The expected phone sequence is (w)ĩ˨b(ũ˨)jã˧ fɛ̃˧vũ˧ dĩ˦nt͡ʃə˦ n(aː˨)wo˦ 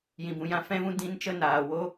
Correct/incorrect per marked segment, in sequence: incorrect, correct, correct

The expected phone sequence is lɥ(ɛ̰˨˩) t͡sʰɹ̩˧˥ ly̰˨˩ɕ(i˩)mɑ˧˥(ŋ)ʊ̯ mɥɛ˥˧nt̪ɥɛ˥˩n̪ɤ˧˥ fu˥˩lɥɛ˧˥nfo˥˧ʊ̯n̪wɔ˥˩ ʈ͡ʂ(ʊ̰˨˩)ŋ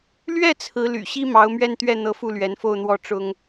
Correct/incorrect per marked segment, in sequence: incorrect, incorrect, incorrect, incorrect

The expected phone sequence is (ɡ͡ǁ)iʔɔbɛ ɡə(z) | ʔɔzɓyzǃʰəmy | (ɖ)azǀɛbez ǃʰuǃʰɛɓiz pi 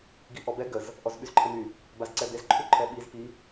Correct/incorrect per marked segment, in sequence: incorrect, correct, incorrect

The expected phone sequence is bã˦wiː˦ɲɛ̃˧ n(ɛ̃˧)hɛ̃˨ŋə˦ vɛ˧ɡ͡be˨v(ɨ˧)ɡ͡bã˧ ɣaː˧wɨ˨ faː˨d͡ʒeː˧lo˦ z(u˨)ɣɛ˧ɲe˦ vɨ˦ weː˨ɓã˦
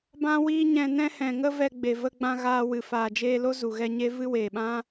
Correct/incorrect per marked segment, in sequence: incorrect, incorrect, correct

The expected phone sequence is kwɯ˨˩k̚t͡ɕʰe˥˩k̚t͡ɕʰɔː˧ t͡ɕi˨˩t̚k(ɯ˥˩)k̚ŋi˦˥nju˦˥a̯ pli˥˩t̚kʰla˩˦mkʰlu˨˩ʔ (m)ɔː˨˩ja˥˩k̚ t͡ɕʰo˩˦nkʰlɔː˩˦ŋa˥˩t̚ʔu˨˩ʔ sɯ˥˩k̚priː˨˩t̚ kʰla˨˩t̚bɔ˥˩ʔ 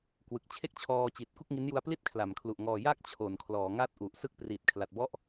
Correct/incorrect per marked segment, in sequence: incorrect, incorrect

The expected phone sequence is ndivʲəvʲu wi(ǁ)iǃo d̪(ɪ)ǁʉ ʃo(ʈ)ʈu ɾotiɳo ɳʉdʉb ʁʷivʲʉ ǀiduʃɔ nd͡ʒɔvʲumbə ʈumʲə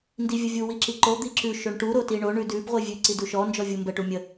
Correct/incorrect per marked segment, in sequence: correct, incorrect, incorrect

